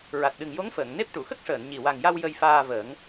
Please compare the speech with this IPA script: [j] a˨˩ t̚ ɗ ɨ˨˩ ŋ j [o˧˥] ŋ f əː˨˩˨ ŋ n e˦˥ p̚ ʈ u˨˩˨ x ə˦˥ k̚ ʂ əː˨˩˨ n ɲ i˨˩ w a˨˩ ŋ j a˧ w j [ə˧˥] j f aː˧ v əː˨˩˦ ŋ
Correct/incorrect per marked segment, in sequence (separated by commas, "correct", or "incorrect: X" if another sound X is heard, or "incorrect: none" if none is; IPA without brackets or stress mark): incorrect: ɹ, correct, incorrect: ə˧